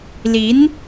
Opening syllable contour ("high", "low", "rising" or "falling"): rising